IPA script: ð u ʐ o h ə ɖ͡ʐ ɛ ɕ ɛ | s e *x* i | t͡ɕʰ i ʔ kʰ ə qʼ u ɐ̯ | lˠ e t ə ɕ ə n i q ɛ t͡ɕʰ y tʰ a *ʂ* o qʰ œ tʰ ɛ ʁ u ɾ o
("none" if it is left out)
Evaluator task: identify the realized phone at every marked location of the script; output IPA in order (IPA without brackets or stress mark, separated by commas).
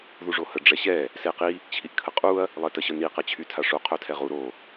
q, ʂ